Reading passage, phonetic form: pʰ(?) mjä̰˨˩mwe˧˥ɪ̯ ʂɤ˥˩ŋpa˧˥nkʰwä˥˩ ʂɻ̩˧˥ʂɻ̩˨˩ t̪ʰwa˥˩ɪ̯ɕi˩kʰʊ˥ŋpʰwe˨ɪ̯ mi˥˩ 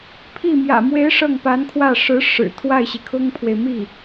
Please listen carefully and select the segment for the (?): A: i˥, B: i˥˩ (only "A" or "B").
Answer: B